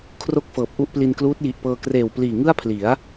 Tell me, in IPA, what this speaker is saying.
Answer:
kʰ r o˥˩ k̚ f ɤː˨˩ p̚ ʔ u˥˩ ʔ p l i˧ n k l uː˦˥ t̚ j i˨˩ ʔ p ɤː˧ k r eː˨˩ w p l iː˨˩ ŋ ɯ˥˩ a̯ pʰ l i˩˦ a̯

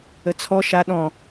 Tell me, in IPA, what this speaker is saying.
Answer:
ə t͡sʰ ɔ ʃ a ɗ ɔ̃

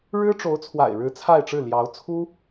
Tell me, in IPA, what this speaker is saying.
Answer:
ɻ ɻ̩˥ ʈ͡ʂ o˧˥ ʊ̯ t͡sʰ w a̰˨˩ ɪ̯ ɻ ɻ̩˧˥ t͡sʰ a˥˧ ɪ̯ ʈ͡ʂ ɻ̩˥˩ l j ɑ˧˥ ʊ̯ t͡sʰ u˥

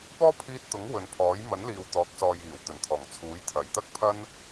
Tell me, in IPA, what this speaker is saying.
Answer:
p ɔː˥ pʰ iː˧ t̚ t̪ ʊ˨˥ ŋ w ɵ˨ n pʰ ɔː˨˥ j m ɐ˨˥ n l iː˨ w t̪ ɔː˨˥ k̚ s ɔː˨ j iː˨˩ w t̪ ɵ˨˩ n t̪ʰ ɔː˨˩ ŋ t͡sʰ uː˨˥ j t̪ʰ ɐ˨˩ j t̪ ɐ˥ k̚ pʰ ɐ˥ n

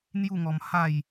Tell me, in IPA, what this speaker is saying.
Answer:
n̪ j u˥˧ ŋ ɔ˧ m h a˥˧ j

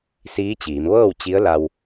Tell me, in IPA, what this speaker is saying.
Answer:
s iː˧˥ t͡ɕ iː˩˧ m ʋ ɤː˥˨ w t͡ɕ i˧˥ ə̯ l a˧ w

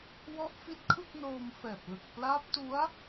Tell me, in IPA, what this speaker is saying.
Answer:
w ɔ˦˥ ʔ f i˦˥ t̚ kʰ ɯ˥˩ k̚ n oː˧ m f ɛː˨˩ p̚ l ɯ˨˩ k̚ p l aː˦˥ p̚ t u˦˥ a̯

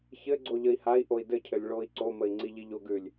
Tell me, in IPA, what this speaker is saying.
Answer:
ç ɘ ɡ͡ǀ o ʎ ə i̯ h a i̯ ʔ o i̯ d ɘ cʰ ɘ lʲ ɭ o i̯ ǀ o m ə i̯ ŋ͡ǀ i ʎ i ʎ o ɡ ʉ lʲ

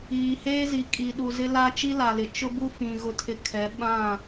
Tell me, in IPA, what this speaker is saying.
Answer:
iː˨ h eː˦ z i˨ kʼ i˨ ɗ u˨ z ɪ˦ l a˦ t͡ʃ i˦ l a˨ l ɪ˨ t͡ʃ ʊ˦ b u˦ f ĩ˨ ɣ ʊ˦ tʰ ɪ˦ kʰ ɛ˨˦ ɓ ã˦˨

